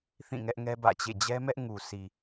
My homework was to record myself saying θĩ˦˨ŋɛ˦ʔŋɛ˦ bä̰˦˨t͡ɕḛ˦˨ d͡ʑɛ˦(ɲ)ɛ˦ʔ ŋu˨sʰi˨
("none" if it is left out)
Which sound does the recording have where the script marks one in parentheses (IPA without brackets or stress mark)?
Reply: m